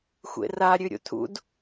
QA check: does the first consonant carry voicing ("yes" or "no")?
no